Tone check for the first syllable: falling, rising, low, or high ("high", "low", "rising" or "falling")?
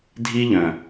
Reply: high